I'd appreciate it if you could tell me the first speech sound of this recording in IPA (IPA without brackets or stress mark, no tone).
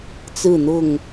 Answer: t͡s